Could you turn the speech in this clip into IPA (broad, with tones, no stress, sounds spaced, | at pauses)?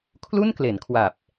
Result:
kʰ l u˥˩ n k l e˩˦ n kʰ w a˨˩ p̚